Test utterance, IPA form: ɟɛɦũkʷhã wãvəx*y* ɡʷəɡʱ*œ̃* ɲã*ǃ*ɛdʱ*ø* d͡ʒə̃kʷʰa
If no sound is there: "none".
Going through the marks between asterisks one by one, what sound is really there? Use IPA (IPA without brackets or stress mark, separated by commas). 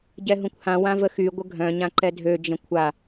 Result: y, œ̃, ǃ, ø